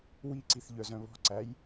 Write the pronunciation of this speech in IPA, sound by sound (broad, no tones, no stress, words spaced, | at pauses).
wiǀiθʎœzœ̃ βɔ̤ǀæj